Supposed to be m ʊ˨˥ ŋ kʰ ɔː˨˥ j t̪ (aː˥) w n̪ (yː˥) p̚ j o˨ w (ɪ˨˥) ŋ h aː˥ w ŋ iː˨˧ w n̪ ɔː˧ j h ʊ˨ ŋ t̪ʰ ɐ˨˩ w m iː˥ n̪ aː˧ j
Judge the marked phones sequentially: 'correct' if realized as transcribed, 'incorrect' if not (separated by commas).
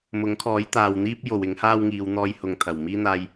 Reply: incorrect, incorrect, correct